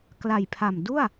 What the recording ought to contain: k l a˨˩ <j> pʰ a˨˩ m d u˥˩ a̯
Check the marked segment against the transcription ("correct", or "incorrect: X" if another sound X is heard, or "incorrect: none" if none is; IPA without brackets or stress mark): correct